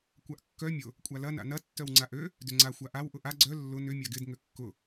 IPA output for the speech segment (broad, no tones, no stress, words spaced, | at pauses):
kʷaʔkːœ mʲʊ | kʷʼalɐ na̰nɐ tːœwŋ͡ǀaʔø | dʏŋ͡ǀa xʷaʔaw ʔʊʔa ɡ͡ǀœ lːʊ nʏ mʲaɡɪd ŋøkːʊ